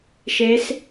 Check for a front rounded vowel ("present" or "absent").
absent